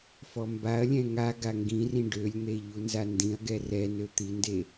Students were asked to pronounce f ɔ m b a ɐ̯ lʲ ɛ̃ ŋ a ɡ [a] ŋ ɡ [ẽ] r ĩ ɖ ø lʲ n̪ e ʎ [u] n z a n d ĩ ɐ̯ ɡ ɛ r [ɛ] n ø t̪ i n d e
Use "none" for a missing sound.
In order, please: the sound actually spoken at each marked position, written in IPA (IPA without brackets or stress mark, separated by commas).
a, ĩ, u, ɛ